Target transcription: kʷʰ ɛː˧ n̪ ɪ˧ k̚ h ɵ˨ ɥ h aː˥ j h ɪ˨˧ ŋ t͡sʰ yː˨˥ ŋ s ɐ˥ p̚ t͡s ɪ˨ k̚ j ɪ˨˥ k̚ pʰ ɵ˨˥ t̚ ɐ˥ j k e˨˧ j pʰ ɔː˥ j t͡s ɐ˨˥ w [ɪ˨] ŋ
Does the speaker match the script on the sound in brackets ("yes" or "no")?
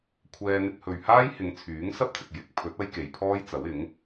no